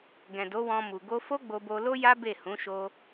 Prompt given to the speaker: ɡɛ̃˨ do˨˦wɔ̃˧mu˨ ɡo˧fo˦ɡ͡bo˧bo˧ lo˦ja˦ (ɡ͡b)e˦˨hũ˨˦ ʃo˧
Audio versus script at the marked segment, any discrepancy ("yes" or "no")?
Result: yes